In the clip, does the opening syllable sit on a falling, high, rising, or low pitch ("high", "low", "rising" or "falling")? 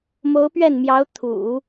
rising